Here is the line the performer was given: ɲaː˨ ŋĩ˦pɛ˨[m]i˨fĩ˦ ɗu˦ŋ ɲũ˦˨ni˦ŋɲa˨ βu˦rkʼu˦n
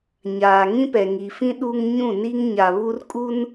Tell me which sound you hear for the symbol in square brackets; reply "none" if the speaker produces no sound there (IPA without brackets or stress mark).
ŋ